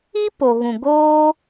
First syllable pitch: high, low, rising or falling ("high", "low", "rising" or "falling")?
high